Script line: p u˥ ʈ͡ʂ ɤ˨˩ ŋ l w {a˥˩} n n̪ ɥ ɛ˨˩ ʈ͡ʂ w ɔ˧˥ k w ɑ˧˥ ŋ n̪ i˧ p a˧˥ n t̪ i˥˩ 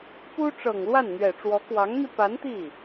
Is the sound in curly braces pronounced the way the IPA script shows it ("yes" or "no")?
yes